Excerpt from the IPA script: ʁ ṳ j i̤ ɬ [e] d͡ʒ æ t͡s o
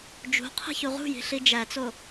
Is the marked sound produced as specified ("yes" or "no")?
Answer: no